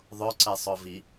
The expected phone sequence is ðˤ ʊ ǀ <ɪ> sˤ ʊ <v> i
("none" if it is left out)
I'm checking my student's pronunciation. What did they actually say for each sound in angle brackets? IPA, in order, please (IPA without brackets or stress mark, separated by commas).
ɪ, v